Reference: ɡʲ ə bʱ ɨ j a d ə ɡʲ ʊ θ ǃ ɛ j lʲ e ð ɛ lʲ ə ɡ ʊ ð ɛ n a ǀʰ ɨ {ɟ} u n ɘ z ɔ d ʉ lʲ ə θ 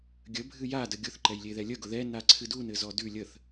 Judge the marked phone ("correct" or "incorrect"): incorrect